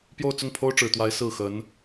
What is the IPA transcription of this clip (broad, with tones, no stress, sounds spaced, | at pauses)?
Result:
p j o˥˧ ʊ̯ t͡s ʊ˥˩ ŋ pʰ o˥ ʊ̯ ʈ͡ʂ ɻ̩˨˩ t̪ w a˧˥ ɪ̯ s ɹ̩˥˩ x ə˧˥ n